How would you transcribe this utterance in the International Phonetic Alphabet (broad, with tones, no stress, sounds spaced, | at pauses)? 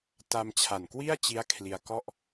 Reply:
t a˧ m t͡ɕʰ a˨˩ n k w i˥˩ a̯ t͡ɕ i˦˥ a̯ kʰ l i˧ a̯ k ɔ˥˩ ʔ